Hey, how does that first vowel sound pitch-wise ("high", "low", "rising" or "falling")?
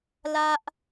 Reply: high